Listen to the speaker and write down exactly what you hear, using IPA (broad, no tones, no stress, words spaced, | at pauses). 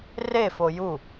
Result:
refo ju